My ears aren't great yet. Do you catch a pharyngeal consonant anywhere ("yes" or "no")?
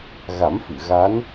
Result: no